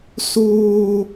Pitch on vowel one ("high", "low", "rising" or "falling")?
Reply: high